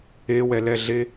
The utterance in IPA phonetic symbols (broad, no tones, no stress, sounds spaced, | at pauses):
e w ɛ l ɛ ɮ e